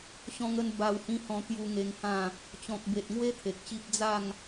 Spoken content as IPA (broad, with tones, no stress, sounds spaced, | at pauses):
ɕ ɔ̃˧ ŋ ə˧ n b a˧ w h ĩ˦ h ɔ̃˧ t̪ j u˧ ŋ e˧ ŋ h ã˥˧ | t͡ɕ ɔ̃˨ k̚ b e˨ t̚ ŋ w e˦ t̪ʰ e˨ k̚ ɕ i˦ p̚ d͡z a˥˧ ŋ